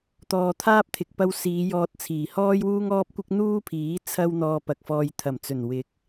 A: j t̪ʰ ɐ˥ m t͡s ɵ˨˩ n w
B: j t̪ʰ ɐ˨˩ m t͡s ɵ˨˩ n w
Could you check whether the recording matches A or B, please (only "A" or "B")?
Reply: B